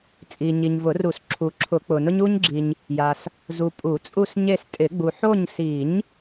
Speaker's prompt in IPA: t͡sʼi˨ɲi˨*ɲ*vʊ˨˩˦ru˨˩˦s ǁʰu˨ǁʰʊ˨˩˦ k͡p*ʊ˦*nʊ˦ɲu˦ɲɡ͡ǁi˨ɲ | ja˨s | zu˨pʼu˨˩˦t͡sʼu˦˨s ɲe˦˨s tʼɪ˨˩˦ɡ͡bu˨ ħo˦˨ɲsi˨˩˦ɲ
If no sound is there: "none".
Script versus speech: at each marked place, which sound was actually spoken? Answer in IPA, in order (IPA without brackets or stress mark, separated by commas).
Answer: ɲ, ʊ˨